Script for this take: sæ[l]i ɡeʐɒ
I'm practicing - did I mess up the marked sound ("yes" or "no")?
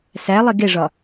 yes